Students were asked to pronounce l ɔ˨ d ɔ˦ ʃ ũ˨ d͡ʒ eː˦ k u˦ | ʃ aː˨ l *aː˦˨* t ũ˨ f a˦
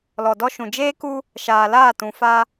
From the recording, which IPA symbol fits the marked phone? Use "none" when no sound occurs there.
aː˦˨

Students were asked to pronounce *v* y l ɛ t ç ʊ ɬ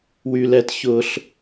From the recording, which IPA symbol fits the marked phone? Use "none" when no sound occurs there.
w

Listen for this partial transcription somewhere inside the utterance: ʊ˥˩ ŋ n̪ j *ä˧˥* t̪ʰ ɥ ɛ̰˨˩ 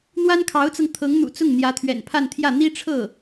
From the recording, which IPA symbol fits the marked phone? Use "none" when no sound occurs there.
ä˧˥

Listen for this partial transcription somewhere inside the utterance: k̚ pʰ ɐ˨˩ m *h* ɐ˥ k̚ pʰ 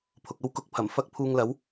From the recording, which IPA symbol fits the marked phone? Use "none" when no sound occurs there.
f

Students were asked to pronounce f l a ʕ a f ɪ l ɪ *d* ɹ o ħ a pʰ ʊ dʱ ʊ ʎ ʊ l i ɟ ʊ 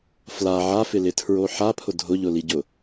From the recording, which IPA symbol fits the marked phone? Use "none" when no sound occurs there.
tʰ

